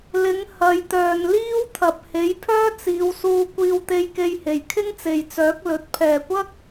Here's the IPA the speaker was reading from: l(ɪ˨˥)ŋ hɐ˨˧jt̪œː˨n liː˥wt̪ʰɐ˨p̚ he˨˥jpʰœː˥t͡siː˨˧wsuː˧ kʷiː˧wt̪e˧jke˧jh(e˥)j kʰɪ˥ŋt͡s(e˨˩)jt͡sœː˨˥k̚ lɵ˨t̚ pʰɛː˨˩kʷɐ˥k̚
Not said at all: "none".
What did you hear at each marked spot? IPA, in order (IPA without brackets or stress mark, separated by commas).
ɪ˨˥, e˨˩, e˨